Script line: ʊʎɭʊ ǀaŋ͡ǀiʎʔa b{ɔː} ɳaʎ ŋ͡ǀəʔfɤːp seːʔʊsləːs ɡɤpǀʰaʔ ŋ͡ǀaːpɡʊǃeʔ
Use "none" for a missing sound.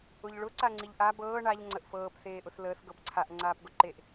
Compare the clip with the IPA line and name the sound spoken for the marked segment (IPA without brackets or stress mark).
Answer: ɤː